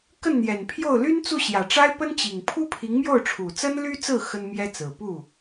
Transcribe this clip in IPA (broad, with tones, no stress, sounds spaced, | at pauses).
k ə˥˩ n n̪ j ɛ˨˩ n pʰ j o˥˩ ʊ̯ l y˥ n t͡s u˥˩ ɕ j ä˨˩ ʈ͡ʂ a˥ ɪ̯ p ə˥ n t͡ɕ i˨˩ ŋ pʰ u˥ pʰ i˧˥ ŋ m j o˥˩ ʊ̯ ʈ͡ʂʰ u˨˩ t͡s ə˥ n l y˥ t͡s ɹ̩˥˩ x ə˥ n m j ɛ˥ t͡s ɹ̩˨˩ p u˥˩